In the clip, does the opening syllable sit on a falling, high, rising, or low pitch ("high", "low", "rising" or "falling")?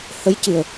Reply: rising